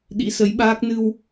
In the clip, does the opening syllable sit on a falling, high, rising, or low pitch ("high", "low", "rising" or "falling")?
rising